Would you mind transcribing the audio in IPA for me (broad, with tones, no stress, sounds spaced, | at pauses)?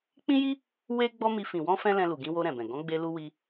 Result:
k͡p ĩ˦ j i˦ | w e˦ ɡ͡b ɔ˦ m i˧ f ĩ˨ w ɔ̃˧ f ɛ̃˦ l ɛ̃˧ l u˨ ɡ ĩ˧ w o˧ ɾ ɛ̃˨ b ɛ̃˨ ɡ ɔ̃˨˦ ɡ͡b e˧ l u˧ w i˧